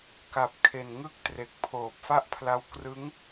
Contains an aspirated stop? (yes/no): yes